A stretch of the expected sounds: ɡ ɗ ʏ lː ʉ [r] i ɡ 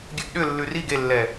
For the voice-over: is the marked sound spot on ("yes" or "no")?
yes